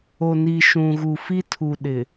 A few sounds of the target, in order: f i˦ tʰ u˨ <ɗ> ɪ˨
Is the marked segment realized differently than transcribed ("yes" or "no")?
no